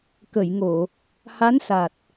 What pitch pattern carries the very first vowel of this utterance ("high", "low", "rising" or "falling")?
low